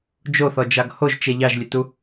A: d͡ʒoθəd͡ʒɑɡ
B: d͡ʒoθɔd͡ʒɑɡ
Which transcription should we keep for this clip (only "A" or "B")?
B